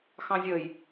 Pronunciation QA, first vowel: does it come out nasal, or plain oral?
nasal